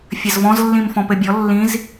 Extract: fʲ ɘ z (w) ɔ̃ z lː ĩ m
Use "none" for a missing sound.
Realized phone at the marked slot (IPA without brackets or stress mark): v